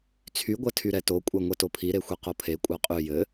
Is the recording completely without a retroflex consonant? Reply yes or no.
yes